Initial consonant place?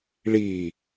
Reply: retroflex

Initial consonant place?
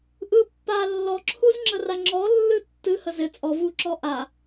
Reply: glottal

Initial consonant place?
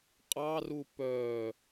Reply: uvular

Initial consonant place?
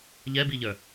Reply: palatal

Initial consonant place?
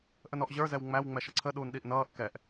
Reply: glottal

